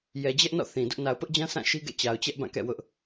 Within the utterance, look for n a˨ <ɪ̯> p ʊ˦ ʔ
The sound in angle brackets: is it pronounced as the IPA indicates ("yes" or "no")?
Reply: no